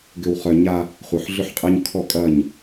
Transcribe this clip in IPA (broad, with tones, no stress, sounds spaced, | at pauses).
ɡ ʏ˨ w χ œ˨ ɲ a˦ | χʷ œ˨ ħ ɮ ʏ˦ ħ qʼ ɛ˦ ɲ kʰ ɔ˦˨ kʼ ɐ˦˨ ɲ